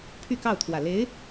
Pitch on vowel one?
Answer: falling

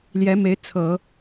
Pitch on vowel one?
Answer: rising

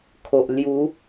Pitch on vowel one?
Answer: low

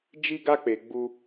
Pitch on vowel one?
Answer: high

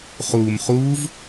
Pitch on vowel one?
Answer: low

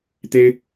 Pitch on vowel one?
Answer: high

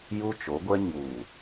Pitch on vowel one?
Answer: high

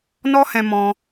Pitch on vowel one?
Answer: high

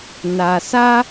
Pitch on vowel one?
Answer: low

